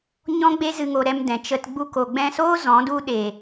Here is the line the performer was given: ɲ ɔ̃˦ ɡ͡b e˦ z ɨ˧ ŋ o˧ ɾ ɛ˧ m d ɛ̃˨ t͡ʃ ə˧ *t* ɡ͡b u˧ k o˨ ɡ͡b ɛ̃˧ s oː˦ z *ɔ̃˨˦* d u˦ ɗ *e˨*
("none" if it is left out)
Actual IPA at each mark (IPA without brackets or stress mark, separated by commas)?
t, ɔ̃˨˦, eː˨